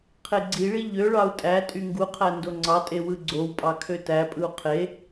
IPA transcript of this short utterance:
qʰ e ɡ͡ǀ i ɭ i ʎ ø ɭ ɑ u̯ tʼ æ tʼ y ŋ ɡ u qʰ æ n d o ŋ͡ǀ ɑ tʼ e w ɯ ɡ͡ǀ o w pʼ ɑ kʰ ø t æ pʼ ɯ u̯ qʰ e

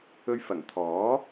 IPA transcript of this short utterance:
ɵ˧ ɥ f ɐ˨˩ ŋ t̪ʰ ɔː˨˥

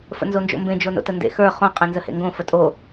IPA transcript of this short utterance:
f ə̰ n z o n d͡ʒ o̰ m b ẽ d͡ʒ o n o̰ t ə n d ḛ x ə˞ χ õ qʼ ẽ n z ə h ḛ ŋ ɡ õ f ə tʼ o

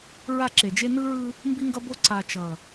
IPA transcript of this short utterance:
ɹ a˦˨ ǁ e˨ d͡ʒ e˦ n ɯ˦ ɹ ɯ˦ | m b i˦ ŋ ɡ ʌ˦ b o˦ ǀ a˨ t͡ʃ ʌ˨

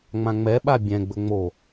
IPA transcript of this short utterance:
ŋ͡m ã ŋ͡m ɛ ɓ a bʲ ɛ̃ ɡ͡b ɵ ŋ͡m o

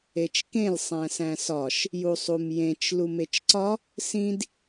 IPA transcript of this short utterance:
e t͡ʃ k ẽ l sˤ æ̃ s æ̃ s ɒ ʃ | j u sˤ u m j ẽ t͡ʃ l u m e t͡ʃ ǀ ɒ | s ĩ d

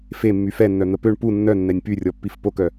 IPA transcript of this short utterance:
f e mː y f ɛ nː œ n̪ ə p ø ɳ p u nː œ nː ɛ nʲ p y rʲ ɔ pː i f p o k œ

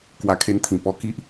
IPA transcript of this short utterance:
k w a˧ kʰ e˧ n t̪ʰ ĩ˨˩ p ɔ˧ k i˦ ʔ

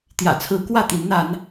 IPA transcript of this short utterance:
t̪ j ä̰˨˩ t͡sʰ ɹ̩˧˥ k w ä˥˩ t̪ i˧˥ n n̪ a˧˥ n

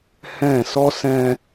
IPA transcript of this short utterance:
h ɛ̃ː˦˨ s ɔ˦ s ɛ̃˦

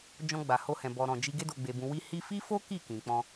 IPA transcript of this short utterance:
d͡ʒ ɔ̃˧ ɡ͡b a˨ h o˧ h ɛ̃˨ b ɔ˨ ɾ ɔ̃˨ d͡ʒ i˧ ɡ e˧ d o˨ ɡ͡b e˨ b ũ˨ w i˧ h i˦ f i˦ f o˦ k i˦˨ k ĩ˨ k͡p ɔ̃˧

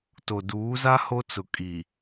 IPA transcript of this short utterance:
t o˨ d uː˨˦ z a˦ h o˦ t͡s ʊ˨ kʼ iː˨

